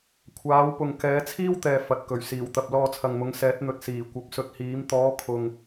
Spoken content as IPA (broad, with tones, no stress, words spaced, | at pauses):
kʷʰaː˨˧wpʊ˨ŋ kɛː˨˧t͡sʰiː˥wt̪ɛː˨ fɐ˨t̚kɵ˨˩ɥ siː˨˩wt̪ɐ˨p̚ lɔː˧t͡sʰɐ˨ŋmʊ˨˧ŋ sɛː˨˥t̚n̪ɵ˨t̚siː˨˩ kʷɐ˨p̚sɵ˧t̚hiː˨˥m t̪ɔː˨˧kʰʊ˨ŋ